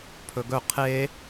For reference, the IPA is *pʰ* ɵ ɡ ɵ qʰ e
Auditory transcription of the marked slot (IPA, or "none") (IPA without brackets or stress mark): pʰ